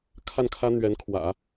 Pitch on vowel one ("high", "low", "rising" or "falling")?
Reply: falling